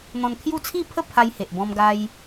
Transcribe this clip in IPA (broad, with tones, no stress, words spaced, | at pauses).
n̪ɔ̃˧nkʰju˥˧ t͡sʰi˥˧pʰə˥˧ pʰa˧jhe˨ʔbɔ̃˧mɡa˧j